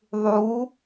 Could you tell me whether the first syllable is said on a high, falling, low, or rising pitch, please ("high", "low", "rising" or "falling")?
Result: rising